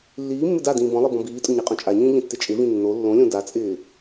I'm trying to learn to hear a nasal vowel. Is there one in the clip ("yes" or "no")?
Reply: yes